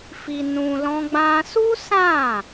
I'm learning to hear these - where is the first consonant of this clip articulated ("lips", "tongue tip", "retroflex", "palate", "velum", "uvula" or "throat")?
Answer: lips